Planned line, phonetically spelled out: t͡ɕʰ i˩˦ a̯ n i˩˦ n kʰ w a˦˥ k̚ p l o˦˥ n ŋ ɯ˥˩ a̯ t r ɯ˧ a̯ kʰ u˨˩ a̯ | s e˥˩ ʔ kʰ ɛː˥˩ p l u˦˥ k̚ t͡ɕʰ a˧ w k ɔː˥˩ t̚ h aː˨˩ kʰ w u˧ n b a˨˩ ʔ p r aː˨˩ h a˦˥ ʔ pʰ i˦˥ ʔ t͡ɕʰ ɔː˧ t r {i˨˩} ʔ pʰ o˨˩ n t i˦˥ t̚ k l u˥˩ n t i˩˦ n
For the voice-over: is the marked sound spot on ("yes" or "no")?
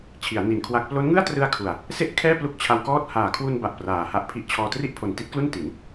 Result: no